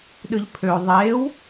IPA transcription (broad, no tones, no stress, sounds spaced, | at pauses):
ɗ ɯ ʎ pʰ ø ðˤ eː w